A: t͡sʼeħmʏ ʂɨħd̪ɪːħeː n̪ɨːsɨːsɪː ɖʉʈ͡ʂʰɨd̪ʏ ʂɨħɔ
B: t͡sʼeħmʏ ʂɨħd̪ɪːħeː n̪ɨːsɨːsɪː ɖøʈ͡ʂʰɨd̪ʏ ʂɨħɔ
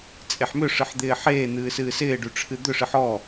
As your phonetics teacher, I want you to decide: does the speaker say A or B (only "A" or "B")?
A